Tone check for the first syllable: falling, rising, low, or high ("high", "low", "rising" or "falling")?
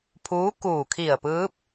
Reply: rising